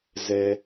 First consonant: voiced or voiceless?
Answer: voiced